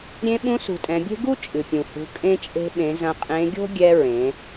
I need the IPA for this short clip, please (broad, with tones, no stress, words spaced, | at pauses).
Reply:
ɾʲẽ˧ ɓũ˧˥sṳ˩˧tʼɛ̃˩˧bʲe̤˥ ɡu˥t͡ʃʼɨ˩ pʲũ˩hṳ˩˧ kʼẽ˧t͡ʃʼe̤˧ ɓẽ˩˧ zɐ̃˧qʼẽ˧˥ ɡʲo̤˥ ɡʲɛ˧ ɹẽ˩˧